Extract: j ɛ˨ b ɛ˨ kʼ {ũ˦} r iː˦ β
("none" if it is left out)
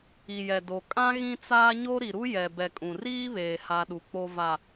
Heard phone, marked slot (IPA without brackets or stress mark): ũ˨